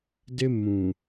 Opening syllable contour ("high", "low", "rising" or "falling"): high